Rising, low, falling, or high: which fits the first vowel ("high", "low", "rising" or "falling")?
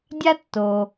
high